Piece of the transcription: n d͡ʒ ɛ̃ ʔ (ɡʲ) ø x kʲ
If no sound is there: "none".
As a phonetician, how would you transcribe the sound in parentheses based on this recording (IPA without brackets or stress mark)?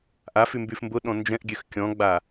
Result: ɡʲ